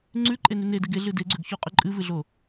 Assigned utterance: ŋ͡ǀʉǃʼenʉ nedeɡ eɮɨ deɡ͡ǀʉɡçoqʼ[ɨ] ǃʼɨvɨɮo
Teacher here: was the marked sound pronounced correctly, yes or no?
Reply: no